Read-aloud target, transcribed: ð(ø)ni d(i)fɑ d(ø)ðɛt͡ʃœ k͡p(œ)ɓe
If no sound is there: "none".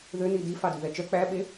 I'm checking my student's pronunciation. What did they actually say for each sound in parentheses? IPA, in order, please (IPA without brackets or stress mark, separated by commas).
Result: ø, i, ʉ, æ